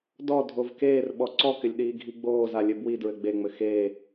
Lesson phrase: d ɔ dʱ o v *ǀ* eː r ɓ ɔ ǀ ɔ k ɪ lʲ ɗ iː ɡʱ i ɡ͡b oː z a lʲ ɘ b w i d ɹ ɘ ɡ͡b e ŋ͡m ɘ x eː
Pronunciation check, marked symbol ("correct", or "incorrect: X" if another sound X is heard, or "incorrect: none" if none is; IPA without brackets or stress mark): incorrect: k